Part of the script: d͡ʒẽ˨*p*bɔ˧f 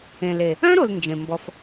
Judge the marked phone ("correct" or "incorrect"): incorrect